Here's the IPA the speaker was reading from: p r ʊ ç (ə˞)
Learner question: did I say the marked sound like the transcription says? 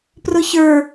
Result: yes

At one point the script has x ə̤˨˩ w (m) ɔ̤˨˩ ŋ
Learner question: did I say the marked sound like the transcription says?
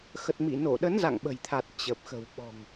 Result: no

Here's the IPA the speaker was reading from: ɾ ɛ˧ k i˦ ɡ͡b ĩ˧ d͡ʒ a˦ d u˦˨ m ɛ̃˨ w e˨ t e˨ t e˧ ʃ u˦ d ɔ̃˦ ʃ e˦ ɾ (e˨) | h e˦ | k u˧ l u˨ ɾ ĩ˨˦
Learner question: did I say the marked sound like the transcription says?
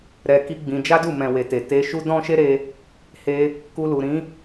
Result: no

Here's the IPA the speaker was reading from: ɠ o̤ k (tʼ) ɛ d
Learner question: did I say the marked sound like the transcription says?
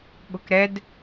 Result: no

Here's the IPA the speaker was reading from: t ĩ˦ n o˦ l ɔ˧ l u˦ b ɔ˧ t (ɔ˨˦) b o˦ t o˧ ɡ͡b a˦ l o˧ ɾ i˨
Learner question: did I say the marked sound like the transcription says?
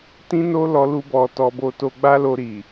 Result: no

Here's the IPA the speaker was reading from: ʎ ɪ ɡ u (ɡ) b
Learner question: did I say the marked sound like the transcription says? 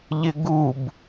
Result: no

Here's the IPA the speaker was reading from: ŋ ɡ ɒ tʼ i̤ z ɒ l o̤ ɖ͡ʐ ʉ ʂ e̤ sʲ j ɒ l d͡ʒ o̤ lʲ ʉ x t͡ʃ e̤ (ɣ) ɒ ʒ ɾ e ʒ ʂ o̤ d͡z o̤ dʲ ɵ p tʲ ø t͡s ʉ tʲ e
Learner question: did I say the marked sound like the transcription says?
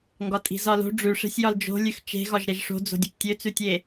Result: yes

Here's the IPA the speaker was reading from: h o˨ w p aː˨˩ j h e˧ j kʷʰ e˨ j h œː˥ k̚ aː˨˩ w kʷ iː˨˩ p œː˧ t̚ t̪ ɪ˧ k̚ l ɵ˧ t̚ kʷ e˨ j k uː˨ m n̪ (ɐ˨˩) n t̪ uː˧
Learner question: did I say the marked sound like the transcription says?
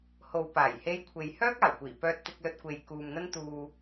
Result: no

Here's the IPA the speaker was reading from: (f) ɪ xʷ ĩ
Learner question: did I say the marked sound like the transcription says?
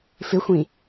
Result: yes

